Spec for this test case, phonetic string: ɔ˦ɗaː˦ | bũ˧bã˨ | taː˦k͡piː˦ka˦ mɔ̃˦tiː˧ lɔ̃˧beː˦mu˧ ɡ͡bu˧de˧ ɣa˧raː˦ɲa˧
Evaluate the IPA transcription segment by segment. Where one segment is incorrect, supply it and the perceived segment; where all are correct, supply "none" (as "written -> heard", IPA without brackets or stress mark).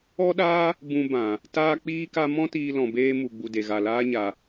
r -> l